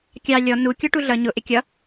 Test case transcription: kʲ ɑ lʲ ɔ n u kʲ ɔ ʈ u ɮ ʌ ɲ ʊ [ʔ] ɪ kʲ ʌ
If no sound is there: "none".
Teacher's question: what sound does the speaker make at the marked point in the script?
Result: ʔ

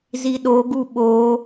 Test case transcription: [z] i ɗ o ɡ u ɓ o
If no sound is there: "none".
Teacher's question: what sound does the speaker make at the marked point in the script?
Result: z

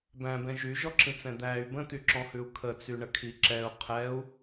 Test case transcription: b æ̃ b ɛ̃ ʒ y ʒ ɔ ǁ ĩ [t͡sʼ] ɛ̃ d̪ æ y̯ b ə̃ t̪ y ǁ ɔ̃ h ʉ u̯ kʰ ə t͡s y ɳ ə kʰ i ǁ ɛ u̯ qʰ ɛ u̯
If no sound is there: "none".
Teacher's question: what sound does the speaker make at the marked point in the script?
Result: t͡s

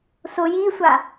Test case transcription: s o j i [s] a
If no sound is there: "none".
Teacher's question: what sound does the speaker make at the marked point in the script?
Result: sʷ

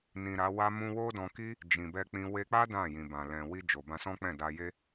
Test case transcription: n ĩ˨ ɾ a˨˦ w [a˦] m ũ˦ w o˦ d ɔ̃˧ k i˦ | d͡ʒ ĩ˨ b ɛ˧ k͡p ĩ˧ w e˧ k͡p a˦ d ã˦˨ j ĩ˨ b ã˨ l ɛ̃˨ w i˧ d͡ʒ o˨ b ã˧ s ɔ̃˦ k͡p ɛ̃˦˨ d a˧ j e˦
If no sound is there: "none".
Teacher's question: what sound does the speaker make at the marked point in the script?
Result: a˦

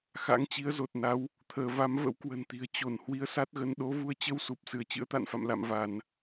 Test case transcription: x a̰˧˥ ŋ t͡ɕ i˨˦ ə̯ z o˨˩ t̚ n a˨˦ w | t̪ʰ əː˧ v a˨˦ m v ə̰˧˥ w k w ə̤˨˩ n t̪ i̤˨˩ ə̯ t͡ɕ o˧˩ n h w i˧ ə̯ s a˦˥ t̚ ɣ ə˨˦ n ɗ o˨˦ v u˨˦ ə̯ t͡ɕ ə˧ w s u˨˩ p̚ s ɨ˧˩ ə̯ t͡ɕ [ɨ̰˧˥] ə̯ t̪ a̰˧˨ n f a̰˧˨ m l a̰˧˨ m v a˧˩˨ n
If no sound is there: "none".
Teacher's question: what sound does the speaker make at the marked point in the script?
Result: ɨ̰˧˥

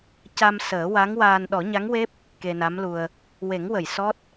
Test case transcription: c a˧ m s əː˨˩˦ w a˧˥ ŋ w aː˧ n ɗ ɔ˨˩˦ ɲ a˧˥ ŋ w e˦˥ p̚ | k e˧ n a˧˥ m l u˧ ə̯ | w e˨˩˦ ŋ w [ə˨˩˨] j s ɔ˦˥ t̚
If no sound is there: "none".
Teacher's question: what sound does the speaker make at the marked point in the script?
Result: ə˨˩˨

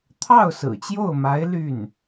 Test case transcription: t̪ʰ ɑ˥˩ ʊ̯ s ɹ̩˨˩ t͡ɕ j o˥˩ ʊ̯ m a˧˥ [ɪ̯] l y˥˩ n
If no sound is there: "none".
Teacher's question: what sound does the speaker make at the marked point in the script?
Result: ɪ̯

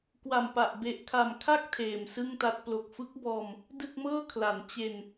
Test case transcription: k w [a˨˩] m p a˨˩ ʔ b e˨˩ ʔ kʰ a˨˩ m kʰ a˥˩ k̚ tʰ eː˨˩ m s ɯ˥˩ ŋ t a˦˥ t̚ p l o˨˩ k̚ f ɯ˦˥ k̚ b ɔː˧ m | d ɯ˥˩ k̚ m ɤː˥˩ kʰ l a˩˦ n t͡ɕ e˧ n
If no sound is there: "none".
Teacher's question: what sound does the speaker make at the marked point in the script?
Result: a˨˩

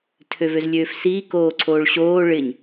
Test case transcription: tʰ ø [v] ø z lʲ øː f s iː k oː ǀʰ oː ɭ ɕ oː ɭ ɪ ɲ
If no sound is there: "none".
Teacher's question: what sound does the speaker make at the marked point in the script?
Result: v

